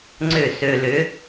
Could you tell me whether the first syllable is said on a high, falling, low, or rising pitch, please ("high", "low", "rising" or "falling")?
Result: falling